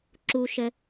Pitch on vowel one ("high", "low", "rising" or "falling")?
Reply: low